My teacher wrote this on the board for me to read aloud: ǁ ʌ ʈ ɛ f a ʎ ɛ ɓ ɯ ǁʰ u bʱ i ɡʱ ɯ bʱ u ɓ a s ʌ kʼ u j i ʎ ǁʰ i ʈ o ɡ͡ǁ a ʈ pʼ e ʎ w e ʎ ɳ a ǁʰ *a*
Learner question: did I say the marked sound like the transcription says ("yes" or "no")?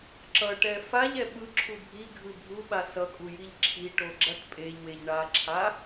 yes